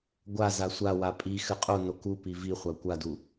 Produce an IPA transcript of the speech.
ɡʷ a z a sʷ a w a pʼ i x ɘ qʼ o n o k u p i v i χʷ a kʷ a d u

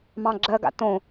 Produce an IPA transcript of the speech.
m ɑ̃ ɡ͡ǁ ɜ ɡ a̰ t õ

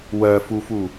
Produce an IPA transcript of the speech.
w ɜ f u f u

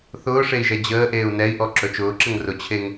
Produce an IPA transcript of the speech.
θ ʊː ʂ e i̯ ʒ ɛ d͡ʑ əː ʔ eː u̯ n ɛ i̯ ʔ ɔ ǁ ɵ t͡ʃ ʊː ǁ ə ŋ r ʊ t͡ɕʰ e ŋ

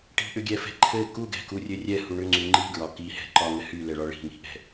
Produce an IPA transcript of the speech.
ʈ i̤ ʔ ʏ ɡʲ ɛ f ɛ̤ ǃʰ ɘ k u ɡ ɛ̤ k u rʲ ɘ rʲ ɛ h u ɳ ʏ ŋ͡ǀ y ŋ͡ǃ i ɡ ɹ ɒ k i h ɛ̤ ǃ ɒ ŋ ɘ h y l ɛ ɭ ɒ ɭ i̤ ŋ i̤ ʔ ɛ̤

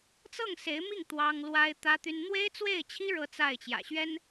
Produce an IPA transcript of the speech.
t͡s ɤ˥˩ ŋ s e˧˥ ɪ̯ m i˥˩ ŋ t̪ w ɑ˥ ŋ l w a˥ ɪ̯ t̪ ä˥ t̪ y˥ n n̪ w e˥ ɪ̯ t͡s w e˥˩ ɪ̯ t͡ɕʰ i˥ ɻ ɤ˥˧ t͡s a˥˩ ɪ̯ t͡ɕ j ä̰˨˩ ɕ ɥ ɛ˥ n

